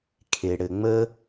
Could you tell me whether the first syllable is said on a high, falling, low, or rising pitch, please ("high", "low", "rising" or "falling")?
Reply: low